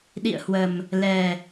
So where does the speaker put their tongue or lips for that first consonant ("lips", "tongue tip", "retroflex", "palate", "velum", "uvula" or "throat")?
tongue tip